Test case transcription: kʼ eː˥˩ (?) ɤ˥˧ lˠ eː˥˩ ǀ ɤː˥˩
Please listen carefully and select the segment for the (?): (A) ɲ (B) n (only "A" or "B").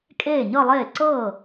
A